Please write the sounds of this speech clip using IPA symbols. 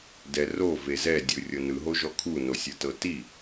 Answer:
dɛrove zɛdʲɯ rʲɤnɯɦoʒɔ kʰunosʲɯ tɤti

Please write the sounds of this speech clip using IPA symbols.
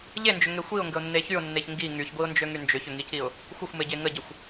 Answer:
ʎend͡ʒʏŋe xʷiʊ̯ŋɡəʊ̯nːe çyʊ̯nːeç ŋɡi ŋyçɡʷiʊ̯nd͡ʒøŋy nd͡ʒʏçʏŋiciʊ̯ | xʷəxʷmeɟe ŋəɟəxʷ

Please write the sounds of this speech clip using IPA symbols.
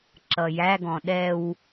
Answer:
ǁʌjæɡɔ̃ ɗɛw

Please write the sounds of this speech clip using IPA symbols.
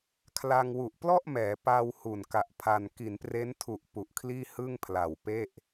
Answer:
kʰla˧ŋwu˨˩ʔ plɔ˥˩ʔmɛː˩˦ pa˧w hu˨˩nka˨˩ʔpʰa˧n ki˩˦npre˦˥ntʰu˨˩ʔ pu˨˩ʔkʰliː˥˩hɯ˥˩ŋ pʰla˨˩wpe˥˩ʔ

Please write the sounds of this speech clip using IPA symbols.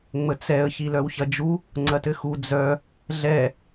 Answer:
ŋ͡mət͡sɛə̯ çilœwçɐd͡ʒu | ŋ͡ǀɐtɘxu d͡zœ | ɮɛ

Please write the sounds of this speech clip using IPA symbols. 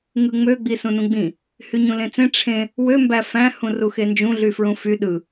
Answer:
ŋɯŋ͡mø ɡ͡bisũnũɡ͡bĩ | hyɲũlẽt͡sẽ ʈ͡ʂʰẽ | wø mbæfæ̃ hũruxend͡ʒũ ɮyfɹũfy ɗɯ

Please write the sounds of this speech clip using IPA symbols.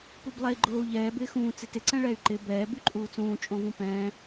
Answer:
publˠɛi̯ɡ͡ǃoːu̯ʎɛː bɪːxũː t͡sɪtɪ ǀɛ̃ɭɛy̯ǃɪ bɛː byǃʼuːt͡sũː t͡ʃʼõvũpɛ̃ː

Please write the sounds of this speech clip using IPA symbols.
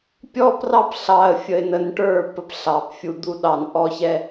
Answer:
pʲɔ˦prɑ˦pɬɑ˨ə̯ fʲə˨ɪ̯nə˨n ʈə˞˦˨ pə˦pɬɑ˨pfʲu˨ d̪u˦ɗɑ˨nʔɔ˦çɛ˦

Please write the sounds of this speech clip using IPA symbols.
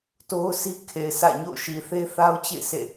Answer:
to˦ʊ̯ si˦kʰe˨ɪ̯sä̰˦˨ ɲo̰˦˨ʊ̯ʃi˨θe˦θa˦ʊ̯ t͡ɕḛ˦˨ɪ̯sḛ˦˨

